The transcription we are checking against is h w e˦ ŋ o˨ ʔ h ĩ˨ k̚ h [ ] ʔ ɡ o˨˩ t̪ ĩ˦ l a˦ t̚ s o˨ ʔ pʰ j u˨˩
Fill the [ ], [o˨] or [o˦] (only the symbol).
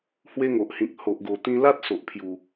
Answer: o˨